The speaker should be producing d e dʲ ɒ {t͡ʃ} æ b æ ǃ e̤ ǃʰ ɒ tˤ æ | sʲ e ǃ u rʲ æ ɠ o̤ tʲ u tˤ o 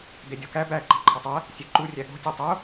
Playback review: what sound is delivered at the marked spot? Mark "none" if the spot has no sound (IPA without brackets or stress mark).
k